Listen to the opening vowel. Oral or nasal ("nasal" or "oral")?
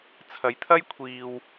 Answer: oral